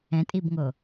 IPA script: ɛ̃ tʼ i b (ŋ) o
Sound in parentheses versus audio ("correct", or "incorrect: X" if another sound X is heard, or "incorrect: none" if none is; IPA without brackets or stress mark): correct